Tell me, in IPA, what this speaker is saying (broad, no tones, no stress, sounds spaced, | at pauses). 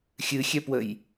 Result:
xʲ ɨ xʲ ɛ p w ə j